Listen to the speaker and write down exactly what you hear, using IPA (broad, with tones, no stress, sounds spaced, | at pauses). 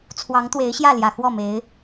t͡sʰ w ɑ˧˥ ŋ t̪ w e˧˥ ɪ̯ ɕ j ä˥˩ l j ä˨˩ x w ɔ˥˩ m e˧˥ ɪ̯